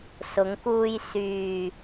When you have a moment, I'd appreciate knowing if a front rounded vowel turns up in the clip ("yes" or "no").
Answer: yes